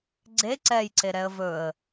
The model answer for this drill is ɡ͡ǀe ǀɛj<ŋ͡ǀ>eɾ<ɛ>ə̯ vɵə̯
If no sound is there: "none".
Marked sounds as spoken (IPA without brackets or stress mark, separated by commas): ǀ, ɛ